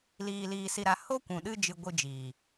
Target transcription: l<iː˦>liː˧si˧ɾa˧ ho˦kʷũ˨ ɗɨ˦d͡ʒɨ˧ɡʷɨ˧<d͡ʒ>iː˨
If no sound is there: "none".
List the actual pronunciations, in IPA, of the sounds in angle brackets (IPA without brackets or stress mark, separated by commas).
iː˧, d͡ʒ